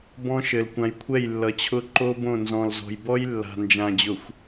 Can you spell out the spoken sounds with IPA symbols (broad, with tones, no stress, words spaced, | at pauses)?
bɔ̃˦ʃɘ˨l kʷã˨jkʷʰɛ˦˨j lːʌ˨t͡ɕʰʊ˦ ǃo˦bõ˦˨nzɔ̃˨lzɔ̤˨j bɔ˦j lːa̤˨nd͡ʒã˨ d͡ʑʊ˨xʷ